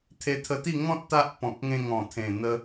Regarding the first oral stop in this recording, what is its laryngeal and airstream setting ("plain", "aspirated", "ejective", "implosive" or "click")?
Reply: aspirated